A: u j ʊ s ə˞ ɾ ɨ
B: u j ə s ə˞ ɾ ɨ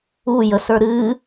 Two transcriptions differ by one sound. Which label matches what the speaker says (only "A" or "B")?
B